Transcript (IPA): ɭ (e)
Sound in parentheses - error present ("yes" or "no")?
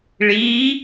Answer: yes